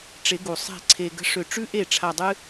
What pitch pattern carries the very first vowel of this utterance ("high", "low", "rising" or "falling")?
rising